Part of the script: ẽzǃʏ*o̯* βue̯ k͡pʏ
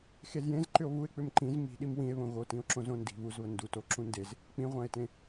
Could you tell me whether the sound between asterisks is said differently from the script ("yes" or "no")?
no